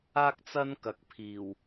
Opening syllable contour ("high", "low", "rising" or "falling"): high